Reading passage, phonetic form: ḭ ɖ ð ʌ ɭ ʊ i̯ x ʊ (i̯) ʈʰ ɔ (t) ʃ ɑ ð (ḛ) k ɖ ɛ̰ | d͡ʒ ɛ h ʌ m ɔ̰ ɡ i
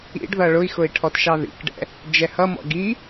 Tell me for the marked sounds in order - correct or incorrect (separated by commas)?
correct, correct, incorrect